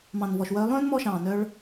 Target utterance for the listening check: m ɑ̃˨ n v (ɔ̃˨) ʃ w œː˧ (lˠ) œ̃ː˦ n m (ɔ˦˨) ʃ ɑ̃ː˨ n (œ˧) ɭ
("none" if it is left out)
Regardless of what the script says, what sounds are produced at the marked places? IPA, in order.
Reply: ɔ˨, lˠ, ɔ˧, œ˧

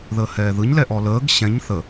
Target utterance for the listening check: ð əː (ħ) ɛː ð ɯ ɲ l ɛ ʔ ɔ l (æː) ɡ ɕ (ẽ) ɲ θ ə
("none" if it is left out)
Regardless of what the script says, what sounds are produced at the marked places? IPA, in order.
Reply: h, əː, ɛ̃

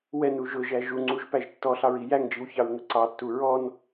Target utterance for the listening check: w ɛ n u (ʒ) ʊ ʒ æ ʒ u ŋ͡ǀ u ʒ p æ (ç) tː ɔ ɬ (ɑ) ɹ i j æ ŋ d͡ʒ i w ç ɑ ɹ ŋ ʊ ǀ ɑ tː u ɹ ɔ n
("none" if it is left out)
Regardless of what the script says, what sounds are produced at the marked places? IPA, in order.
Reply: ʒ, ʒ, ɑ

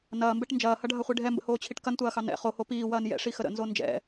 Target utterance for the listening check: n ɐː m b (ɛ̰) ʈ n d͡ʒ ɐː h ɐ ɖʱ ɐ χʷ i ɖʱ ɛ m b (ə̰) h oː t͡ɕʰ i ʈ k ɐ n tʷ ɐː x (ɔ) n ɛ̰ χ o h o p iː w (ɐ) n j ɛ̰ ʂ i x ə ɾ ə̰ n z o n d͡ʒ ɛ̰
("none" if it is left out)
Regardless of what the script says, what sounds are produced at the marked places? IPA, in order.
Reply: ɛ, ə̰, ɑ, ɐː

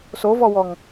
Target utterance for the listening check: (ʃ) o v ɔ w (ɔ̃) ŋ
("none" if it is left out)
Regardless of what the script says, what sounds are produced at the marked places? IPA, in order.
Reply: s, ɔ

